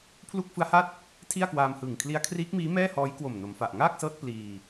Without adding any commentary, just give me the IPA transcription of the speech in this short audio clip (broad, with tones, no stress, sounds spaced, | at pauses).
pʰ l u˥˩ k̚ f ɯ˦˥ a̯ h a˥˩ t̚ | tʰ i˥˩ a̯ k w aː˧ m h ɯː˨˩ ŋ kʰ l i˦˥ a̯ kʰ r iː˦˥ k̚ m iː˦˥ m ɛː˥˩ h ɔː˦˥ j k w o˨˩ m n o˩˦ m f a˨˩ ʔ ŋ aː˥˩ k̚ s ɤː˦˥ t̚ p l iː˧